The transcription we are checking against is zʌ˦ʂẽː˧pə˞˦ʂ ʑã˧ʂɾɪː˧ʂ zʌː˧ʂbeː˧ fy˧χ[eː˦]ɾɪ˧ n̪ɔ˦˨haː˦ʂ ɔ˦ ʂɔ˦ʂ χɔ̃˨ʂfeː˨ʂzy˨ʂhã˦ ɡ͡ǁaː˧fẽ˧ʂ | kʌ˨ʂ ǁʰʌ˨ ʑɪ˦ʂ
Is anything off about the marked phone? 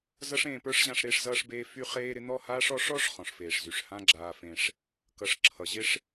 yes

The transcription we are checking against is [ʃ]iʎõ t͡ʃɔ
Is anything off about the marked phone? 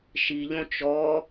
no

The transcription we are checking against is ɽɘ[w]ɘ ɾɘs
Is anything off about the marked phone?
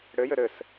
yes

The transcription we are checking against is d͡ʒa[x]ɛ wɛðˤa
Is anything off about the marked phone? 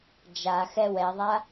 no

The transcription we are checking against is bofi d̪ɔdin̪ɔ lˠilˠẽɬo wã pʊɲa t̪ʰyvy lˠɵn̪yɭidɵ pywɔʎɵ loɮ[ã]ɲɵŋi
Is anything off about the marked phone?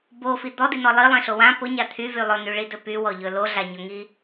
yes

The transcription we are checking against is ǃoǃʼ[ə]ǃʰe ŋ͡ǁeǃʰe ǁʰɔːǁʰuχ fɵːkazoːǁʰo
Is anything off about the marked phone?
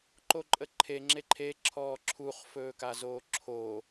no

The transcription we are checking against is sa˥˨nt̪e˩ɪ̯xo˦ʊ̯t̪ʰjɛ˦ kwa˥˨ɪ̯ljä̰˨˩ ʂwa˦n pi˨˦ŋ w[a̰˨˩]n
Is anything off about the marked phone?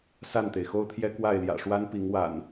no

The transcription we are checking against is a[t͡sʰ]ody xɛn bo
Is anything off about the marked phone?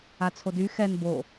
no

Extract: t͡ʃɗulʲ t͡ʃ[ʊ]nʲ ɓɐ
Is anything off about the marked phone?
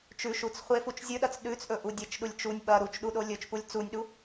yes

